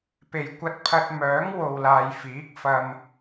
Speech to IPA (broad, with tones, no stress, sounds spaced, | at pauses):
p e˨ j kʷ ɐ˧ t̚ pʰ ɐ˧ t̚ m œː˨˥ ŋ w o˧ w l aː˧ j f iː˨˥ k̚ f ɐ˧ m